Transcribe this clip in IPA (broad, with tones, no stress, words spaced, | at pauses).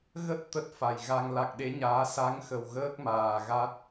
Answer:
ɣə˦˥t̚ t̪ə˦˥t̚fa˨˩jɣa˧ŋ la˨˩k̚ɗe˨˦ɲaː˨˦ sa˨˦ŋxə˨˩w ɣəː˦˥k̚maː˨˩ ɣa˦˥t̚